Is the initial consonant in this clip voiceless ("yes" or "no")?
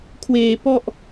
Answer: yes